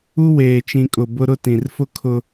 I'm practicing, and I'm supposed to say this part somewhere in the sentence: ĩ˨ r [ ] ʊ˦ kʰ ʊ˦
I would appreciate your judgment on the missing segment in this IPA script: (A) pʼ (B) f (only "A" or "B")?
B